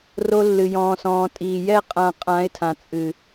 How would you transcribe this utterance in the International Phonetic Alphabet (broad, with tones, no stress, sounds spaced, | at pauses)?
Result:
r o˧ lː ɨ˨ j ɔ̃ː˨ s ɔ̃ː˨ tʼ iː˨ j ɛ˦˨ qʼ ã˧ qʼ ã˨˦ ɪ̯ tʰ ã˨ t͡sʼ ɨ˨